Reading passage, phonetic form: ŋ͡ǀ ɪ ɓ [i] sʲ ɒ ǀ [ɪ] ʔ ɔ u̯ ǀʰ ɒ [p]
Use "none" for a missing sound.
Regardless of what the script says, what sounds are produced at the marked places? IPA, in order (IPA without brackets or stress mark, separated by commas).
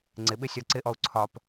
ɪ, ɪ, p